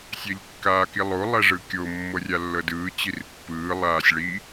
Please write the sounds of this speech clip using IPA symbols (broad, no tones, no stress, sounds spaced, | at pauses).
sʲ ɛ ʎ kː aː k i lˠ o lˠ ɛ ʐ ɯ kʲ o mː ɤ rʲ a lː ɤ d ɯː t͡ɕ i r pː ɯː lˠ aː sʲ ɭ i